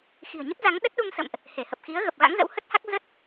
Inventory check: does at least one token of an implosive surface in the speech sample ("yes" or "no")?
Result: yes